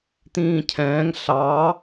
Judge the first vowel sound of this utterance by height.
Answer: high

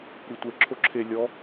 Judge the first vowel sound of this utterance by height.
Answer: high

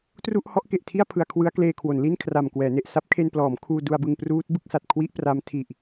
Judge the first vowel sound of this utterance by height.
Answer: high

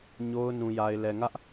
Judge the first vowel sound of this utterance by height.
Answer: mid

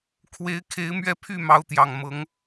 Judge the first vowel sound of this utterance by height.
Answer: mid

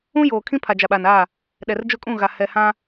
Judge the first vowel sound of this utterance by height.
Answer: high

